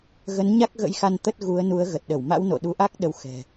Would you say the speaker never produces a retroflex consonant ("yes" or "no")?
yes